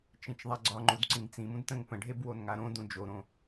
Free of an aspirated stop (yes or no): yes